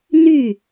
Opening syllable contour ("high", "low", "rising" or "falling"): falling